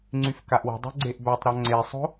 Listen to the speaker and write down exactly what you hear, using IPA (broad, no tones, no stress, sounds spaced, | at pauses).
ŋ͡ǀ y f k a ʔ w ə̤ dˤ o̤ ɡ͡ǀ e ʔ b œ tˤ ɾ ɔ ŋ͡ǀ e sˤ o̤